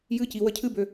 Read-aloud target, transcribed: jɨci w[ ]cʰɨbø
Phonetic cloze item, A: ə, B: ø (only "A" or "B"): A